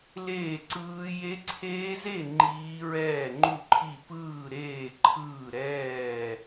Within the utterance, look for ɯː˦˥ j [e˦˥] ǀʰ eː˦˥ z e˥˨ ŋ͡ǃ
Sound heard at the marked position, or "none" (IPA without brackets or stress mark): e˦˥